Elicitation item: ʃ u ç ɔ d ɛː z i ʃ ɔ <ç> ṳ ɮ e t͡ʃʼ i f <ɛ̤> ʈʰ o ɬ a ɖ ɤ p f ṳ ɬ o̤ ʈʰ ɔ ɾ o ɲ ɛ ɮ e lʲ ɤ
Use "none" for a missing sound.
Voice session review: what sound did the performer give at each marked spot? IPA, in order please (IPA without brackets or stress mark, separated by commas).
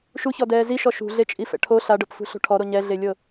ʃ, ɛ̰